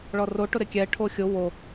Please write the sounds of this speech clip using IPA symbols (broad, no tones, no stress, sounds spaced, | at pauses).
ɭ ɔ r o ʈ ʊ ɾ ɪ kʲ ɛ ʈʰ o xʲ ʊ w o